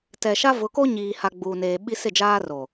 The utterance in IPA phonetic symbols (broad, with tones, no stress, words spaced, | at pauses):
tɛ˨ʃa˦ vʊ˨˦ko˦ɲiː˨ha˨ ɡ͡buː˨neː˨ɓi˦ sɪ˦˨d͡ʒaː˦roː˨